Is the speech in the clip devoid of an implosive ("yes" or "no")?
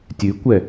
yes